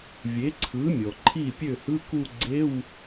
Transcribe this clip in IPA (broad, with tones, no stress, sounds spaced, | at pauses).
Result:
vʲ e˩˥ ǀʰ ɯ˩˥ mʲ ɔ˩ ǃʰ i˥˩ pʲ ø˥˩ h ɯ˧˥˧ k u˥˧ ɡ͡ǀ e˧˥˧ w